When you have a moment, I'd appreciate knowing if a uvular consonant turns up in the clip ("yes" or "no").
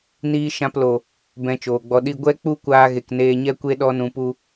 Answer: no